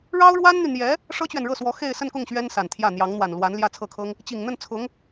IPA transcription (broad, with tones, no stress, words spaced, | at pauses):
ɻɑ˥ʊ̯ɻwa˥nn̪y˨n̪jɛ˧˥ | ʂɤ˥t͡ɕɥɛ˨nɻɤ˥˩swɔ˧˥ xe˥˧ɪ̯sə˥˧nkʊ˥˩ŋ ɕɥɛ˥nsa˨˩nt̪ʰjä˥˩ n̪jɑ˧˥ŋn̪wa˨˩nlwa˧˥n ljä˥˧t͡sʰɤ˥˩kʰɤ˥ŋ | t͡ɕi˨˩ŋn̪ə˥˩n t͡sʰʊ˧˥ŋ